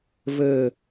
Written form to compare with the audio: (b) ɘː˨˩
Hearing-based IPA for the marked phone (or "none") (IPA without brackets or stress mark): v